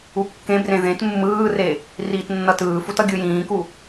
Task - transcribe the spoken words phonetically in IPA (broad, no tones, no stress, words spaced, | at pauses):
ukːẽbrẽ ðẽt mːɯːre | riːtnːʌtɯːfut ʌɡʲɯjĩːku